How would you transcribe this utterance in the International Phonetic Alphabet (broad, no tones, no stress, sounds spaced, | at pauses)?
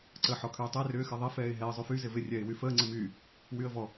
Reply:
ǀ əː ħ ɔ kʰ yː tˤ ə ɪ̯ r ʏː x ɪ ðˤ ɪ f ɛː ɪ̯ ɦ ɛ ə̯ zˤ y f y z ɪ v ɪ rʲ ɛː ɪ̯ w y f əː ŋ͡ǀ ɪ m yː | w y ə̯ v ɔ